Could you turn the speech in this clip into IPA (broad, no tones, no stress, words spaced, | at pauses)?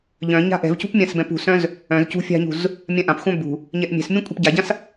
ʎœ̃ ɲa̤ʔɛ̤vcṳp mʲãsbɛ̃pṳsœ̃z | œ̃zcṳ fʲa̤ɲṳz | mʲãʔãpxʷœ̃ bṳ | ɲɛʔmʲɛ̤smʲũ kʷʼɛ̤pɟaɟãs